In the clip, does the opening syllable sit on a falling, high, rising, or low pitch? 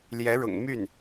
rising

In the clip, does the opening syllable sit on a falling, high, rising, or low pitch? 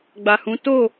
low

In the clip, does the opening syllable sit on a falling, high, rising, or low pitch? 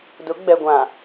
rising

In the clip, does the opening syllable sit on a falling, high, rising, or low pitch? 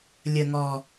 low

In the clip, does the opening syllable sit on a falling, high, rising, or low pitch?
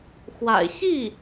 low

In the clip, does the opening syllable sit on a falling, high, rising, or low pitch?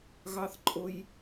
high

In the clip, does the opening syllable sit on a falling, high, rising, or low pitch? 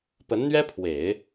rising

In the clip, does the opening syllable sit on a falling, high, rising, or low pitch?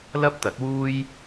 high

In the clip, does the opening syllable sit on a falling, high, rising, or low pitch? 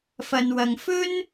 low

